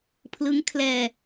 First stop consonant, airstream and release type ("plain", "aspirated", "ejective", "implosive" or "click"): aspirated